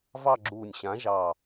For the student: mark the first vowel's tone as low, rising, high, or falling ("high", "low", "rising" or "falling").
falling